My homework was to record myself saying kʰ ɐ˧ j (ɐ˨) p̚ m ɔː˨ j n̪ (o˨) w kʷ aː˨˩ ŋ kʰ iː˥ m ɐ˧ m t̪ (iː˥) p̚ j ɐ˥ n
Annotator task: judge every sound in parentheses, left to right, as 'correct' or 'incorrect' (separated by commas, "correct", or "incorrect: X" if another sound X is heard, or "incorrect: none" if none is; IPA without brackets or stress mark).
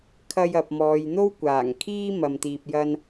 correct, incorrect: o˥, incorrect: iː˧